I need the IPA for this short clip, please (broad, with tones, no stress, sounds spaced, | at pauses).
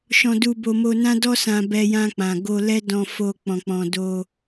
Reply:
ʃ ɔ̃˧ d u˧ b o˧ m o˧ n ã˦ d ɔ˦ s ã˧ b ɛ˧ j ã˧ k͡p ã˨ ɡ o˧ l ɛ˦ d ɔ̃˧ f o˧ k͡p ɔ̃˨ k͡p ɔ̃˨ d o˧